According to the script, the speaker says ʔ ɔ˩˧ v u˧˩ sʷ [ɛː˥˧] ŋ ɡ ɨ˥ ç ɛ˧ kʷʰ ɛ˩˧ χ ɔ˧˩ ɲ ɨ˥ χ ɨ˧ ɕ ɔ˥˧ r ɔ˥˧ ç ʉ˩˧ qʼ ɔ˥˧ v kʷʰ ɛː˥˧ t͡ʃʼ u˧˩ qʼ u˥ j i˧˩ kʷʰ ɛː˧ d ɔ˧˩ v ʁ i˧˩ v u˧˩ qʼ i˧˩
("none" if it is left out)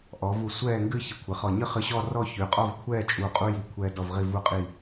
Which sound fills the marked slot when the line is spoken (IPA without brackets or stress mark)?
ɛː˥˧